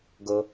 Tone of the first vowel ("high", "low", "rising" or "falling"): low